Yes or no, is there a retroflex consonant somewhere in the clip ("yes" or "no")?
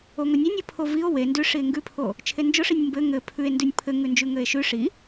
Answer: yes